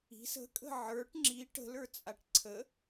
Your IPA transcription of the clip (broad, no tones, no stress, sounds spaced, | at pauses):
i̤ s ə̤ kʼ ə̤ ʕ ə˞ ʈ ŋ͡ǁ i ʈ ə̤ l ə˞ t͡sʼ a ʈ ǀʰ ə